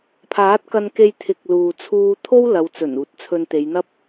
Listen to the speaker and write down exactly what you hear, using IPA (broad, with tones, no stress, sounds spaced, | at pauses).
pʰ aː˨˥ t̚ k ɐ˧ n k e˧ j t̪ʰ ɪ˨˥ k̚ l uː˨ t͡sʰ uː˧ t̪ʰ o˥ w l ɐ˨˧ w t͡s ɵ˨˩ n uː˨˥ t̚ t͡sʰ ɵ˧ n t̪ e˨˧ j n̪ ɐ˥ p̚